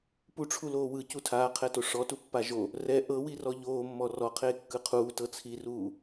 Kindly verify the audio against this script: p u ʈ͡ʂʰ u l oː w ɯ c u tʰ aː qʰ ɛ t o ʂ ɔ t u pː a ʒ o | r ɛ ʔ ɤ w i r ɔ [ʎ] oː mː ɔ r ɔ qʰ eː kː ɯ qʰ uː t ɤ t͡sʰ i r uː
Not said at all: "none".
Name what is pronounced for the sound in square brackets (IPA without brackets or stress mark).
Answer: ʎ